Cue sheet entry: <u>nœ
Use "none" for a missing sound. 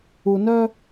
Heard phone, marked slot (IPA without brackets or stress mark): u